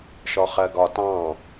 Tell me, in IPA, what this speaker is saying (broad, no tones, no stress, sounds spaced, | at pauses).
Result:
ʃ ɔ χ ɜ ɡ ɒ t ɑ̃